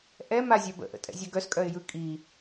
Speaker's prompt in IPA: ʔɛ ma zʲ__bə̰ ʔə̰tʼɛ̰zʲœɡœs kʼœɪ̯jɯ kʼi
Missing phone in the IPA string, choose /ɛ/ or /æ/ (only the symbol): æ